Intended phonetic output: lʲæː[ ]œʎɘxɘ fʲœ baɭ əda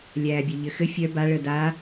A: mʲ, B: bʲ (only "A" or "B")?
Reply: B